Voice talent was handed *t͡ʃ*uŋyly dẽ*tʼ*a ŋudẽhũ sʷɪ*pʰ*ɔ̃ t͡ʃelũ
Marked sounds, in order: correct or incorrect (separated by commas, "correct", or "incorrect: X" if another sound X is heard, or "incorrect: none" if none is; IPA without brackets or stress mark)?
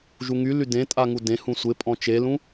incorrect: ʒ, correct, incorrect: pʼ